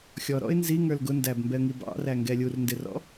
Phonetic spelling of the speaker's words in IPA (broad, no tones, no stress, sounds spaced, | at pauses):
xʲ ɔ ɾ ɔ̰ ɪ̯ n z i ŋ ə˞ l ɡ ʊ n d æ b m b ɛ ə̯ ŋ i b ɑ̰ r æ ŋ ɡ ɛ lʲ u r n d ɪ r ɔ̰